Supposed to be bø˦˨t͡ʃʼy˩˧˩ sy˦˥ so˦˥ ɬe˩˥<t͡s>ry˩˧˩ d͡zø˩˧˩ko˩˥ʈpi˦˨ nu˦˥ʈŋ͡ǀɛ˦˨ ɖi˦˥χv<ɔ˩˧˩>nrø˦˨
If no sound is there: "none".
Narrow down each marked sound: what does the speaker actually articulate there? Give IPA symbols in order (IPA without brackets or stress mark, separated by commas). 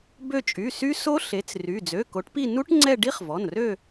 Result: t͡s, ɔ˩˧˩